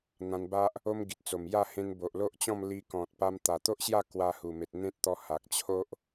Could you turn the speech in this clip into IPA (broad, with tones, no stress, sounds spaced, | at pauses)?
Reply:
n̪ ã˧ n b a˦ ʔ | o˦ m ɡ i˨ t̚ t͡s o˨˩ m j a˥˧ h ẽ˧ n b o˨ ʔ l o˦ ʔ t͡ɕ ɔ̃˥˧ m l i˧ k ɔ̃˨ t̚ p a˧ m t̪ a˨˩ t̪ o˦ ʔ ɕ j a˥˧ k w a˧ h u˨˩ m e˨ t̚ n̪ ẽ˦ t̚ t̪ ɔ˧ h a˨ k̚ t͡ɕʰ o˦ ʔ